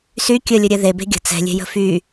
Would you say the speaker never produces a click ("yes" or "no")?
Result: yes